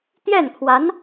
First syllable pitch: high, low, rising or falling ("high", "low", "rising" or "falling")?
falling